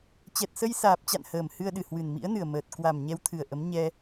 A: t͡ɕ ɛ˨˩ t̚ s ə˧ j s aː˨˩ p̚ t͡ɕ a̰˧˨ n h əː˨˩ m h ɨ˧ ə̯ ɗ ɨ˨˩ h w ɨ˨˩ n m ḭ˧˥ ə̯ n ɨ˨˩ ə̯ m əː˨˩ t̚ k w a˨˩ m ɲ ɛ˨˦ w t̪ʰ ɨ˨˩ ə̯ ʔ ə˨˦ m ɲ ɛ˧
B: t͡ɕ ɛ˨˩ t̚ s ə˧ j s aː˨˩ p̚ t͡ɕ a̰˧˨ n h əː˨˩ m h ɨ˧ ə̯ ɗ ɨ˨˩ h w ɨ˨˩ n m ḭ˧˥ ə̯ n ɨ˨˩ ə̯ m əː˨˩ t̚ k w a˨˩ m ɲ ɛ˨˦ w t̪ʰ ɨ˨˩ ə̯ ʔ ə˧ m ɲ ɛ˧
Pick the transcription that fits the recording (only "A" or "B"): A